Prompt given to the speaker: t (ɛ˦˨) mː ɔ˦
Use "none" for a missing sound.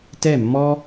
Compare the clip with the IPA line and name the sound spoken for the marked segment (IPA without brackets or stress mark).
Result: ɛ˦˨